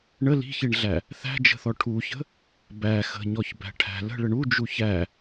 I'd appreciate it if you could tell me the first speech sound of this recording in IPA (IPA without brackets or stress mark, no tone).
ɳ